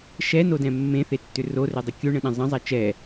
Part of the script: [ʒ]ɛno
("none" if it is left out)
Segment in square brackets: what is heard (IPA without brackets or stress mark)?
ʃ